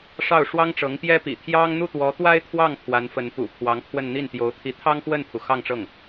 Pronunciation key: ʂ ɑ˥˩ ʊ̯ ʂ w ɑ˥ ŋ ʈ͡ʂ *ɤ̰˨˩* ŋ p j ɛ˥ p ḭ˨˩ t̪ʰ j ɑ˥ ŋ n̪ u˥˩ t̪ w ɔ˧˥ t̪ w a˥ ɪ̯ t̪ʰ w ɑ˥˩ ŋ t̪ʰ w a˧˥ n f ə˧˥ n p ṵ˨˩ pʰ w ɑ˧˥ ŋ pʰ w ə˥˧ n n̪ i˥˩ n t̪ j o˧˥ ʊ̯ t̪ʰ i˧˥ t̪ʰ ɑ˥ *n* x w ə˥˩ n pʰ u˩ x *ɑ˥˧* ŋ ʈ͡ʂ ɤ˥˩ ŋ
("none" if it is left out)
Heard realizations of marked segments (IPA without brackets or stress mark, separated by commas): ɤ˧˥, ŋ, ɑ˥˧